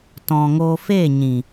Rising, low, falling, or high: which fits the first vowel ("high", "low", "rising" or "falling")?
low